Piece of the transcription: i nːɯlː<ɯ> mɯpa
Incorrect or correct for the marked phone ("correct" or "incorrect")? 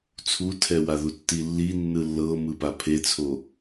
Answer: incorrect